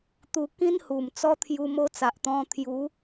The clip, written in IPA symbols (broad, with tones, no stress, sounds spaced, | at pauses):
t̪ u˧ k ĩ˦ n h u˨˩ m t͡s ɔ˦ t̪ʰ j u˧ m o˦ t͡s a˨ ʔ t̪ ɔ̃˧ t̪ʰ j u˨˦